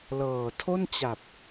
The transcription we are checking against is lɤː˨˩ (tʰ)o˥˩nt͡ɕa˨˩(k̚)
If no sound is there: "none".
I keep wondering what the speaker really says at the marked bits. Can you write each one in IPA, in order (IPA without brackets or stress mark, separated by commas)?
tʰ, p̚